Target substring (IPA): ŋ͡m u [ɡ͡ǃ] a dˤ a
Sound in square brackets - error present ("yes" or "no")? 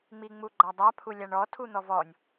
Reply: no